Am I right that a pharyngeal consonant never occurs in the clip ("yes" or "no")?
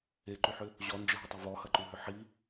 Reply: no